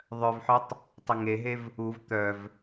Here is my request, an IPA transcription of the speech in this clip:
ðˤ œ v ħ œ tˤ | tˤ ə ŋ e ɦ e v | u v t̪ œ v

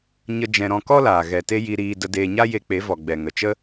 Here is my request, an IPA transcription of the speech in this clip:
ɲ ə˦ d͡ʒ ɛ̃˧ ɾ ɔ̃˧ k ɔ˦ l aː˨ ɣ ɛ˨ t e˦ j i˧ ɾ iː˧ d ə˧ d eː˧ ɲ a˦ j e˧ k͡p e˨˦ v ɔ˨ ɡ͡b ɛ˨ ŋ ə˨ t͡ʃ ə˦

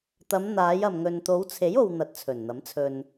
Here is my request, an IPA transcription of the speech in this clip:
t̪ ɐ˨˧ m n̪ aː˨˧ j ɐ˨ m ŋ ɵ˨ n t̪ o˨˧ w t͡sʰ e˨˥ j o˧ w n̪ ɐ˧ t̚ t͡sʰ ɵ˨˩ n n̪ ɐ˨˥ m t͡sʰ ɵ˧ n

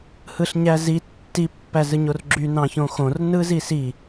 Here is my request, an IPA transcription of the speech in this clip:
h ɯ ɬ ɲ æ z i tː i pː æ z ɯ ɲ o r ɡ͡ǁ y n ɑ̃ ç õ x õ r n ɯ z i s i

